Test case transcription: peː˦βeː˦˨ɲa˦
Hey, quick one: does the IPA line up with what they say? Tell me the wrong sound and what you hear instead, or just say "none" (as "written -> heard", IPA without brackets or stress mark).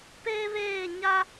none